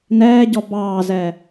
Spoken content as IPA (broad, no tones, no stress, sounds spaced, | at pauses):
n ɛː ɟ ɔ b ɑː z ɛ